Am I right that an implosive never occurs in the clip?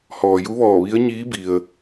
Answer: yes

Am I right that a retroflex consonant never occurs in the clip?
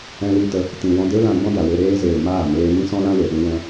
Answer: yes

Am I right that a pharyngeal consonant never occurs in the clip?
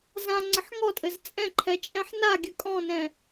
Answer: no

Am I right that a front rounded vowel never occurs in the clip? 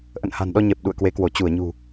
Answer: yes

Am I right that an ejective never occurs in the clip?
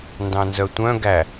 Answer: yes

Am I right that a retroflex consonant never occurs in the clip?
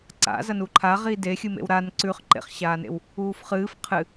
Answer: yes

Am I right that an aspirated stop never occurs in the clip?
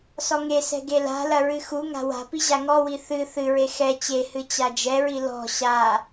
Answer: yes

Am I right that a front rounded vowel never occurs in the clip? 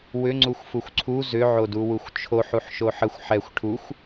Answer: no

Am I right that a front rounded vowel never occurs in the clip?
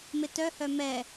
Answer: no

